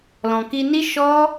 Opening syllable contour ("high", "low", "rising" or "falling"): low